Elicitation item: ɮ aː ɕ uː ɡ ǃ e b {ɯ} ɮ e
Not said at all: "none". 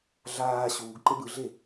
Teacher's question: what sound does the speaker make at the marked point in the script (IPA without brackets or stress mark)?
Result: ɯ